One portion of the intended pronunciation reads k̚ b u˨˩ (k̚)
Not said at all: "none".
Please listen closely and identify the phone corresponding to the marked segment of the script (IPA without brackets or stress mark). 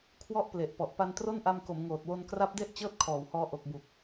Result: k̚